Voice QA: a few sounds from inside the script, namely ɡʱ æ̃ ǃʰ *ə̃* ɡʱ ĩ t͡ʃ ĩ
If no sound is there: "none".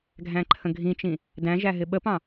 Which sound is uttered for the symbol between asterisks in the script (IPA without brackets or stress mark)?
ə̃